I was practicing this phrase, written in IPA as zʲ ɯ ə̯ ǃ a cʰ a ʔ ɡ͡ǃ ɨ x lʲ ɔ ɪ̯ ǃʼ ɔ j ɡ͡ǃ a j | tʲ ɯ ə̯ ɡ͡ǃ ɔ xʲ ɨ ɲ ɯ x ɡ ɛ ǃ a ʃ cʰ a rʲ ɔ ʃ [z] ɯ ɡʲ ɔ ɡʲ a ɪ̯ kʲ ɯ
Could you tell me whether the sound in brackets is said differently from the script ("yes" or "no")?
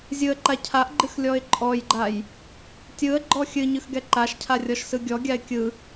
yes